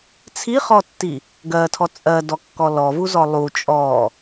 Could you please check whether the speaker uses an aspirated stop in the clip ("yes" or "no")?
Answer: yes